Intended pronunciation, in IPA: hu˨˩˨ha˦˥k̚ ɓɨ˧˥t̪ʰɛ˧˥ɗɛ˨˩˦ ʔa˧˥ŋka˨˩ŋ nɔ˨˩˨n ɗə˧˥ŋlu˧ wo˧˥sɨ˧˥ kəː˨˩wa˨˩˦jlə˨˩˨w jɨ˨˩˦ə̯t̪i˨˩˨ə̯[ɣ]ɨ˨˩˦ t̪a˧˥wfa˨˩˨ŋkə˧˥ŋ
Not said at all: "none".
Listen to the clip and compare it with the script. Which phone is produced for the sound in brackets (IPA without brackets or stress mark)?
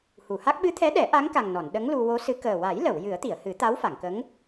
h